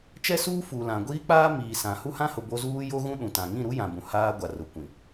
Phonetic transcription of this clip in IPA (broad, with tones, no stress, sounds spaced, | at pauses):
t͡ʃ ɛ˦ s uː˦ f u˨ l ã˨ ɡʷ iː˦ k͡p aː˦ m iː˨ s ã˨ h u˦ h ã˦ h ʊ˨ b o˦ z uː˦ j o˦ ɣ ũ˦ ɗ ũ˨ t ã˨ ŋ ĩ˦˨ ɾ u˦ j ã˨ b ũ˨ h aː˦ ɡʷ a˨ r ʊ˨ kʷ ĩ˨